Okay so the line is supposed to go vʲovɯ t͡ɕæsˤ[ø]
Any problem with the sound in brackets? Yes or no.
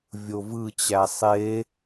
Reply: yes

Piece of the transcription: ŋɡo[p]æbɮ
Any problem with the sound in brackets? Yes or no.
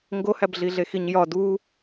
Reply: yes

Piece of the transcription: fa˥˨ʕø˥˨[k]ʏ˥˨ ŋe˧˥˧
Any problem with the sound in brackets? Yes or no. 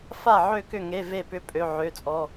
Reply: no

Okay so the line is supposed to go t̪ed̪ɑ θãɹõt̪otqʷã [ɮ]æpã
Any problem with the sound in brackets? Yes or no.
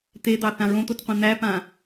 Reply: yes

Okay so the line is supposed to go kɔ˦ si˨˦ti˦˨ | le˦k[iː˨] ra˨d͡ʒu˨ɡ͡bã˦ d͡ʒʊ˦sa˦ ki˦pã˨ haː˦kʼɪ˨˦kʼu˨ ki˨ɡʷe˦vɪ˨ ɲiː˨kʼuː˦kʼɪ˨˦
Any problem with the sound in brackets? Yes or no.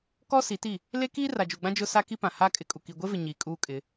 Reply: yes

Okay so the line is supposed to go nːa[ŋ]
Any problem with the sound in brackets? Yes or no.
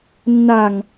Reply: no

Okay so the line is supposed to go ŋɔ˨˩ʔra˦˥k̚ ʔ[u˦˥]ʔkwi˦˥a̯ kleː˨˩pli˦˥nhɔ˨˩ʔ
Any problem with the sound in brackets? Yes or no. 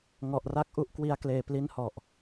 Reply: no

